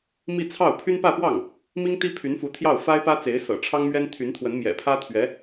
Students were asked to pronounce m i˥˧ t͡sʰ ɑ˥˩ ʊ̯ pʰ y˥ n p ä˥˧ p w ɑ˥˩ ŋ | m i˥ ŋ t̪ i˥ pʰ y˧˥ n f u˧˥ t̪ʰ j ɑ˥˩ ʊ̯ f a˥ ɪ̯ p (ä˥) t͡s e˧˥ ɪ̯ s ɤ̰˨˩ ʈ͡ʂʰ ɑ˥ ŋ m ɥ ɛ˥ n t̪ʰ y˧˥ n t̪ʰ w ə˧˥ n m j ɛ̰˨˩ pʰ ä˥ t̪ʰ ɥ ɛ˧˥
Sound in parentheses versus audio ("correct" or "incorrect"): correct